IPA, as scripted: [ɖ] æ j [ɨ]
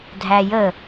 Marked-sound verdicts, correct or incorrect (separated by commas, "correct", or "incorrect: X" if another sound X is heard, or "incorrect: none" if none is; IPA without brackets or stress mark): incorrect: dʱ, incorrect: ə